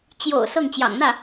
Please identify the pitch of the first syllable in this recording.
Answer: low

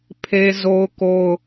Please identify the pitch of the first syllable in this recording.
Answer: high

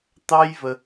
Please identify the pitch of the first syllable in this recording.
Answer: high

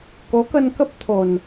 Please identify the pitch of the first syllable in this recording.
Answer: rising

